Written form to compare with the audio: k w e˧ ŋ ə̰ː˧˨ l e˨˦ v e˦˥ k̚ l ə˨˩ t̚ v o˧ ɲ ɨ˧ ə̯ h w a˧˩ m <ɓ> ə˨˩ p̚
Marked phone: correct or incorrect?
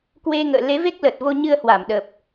incorrect